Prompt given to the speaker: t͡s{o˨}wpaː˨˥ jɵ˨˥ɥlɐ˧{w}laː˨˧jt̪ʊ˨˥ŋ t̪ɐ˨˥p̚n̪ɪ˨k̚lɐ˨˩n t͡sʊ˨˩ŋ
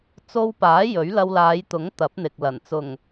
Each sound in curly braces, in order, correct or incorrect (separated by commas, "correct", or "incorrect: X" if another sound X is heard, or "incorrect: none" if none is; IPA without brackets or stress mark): incorrect: o˧, correct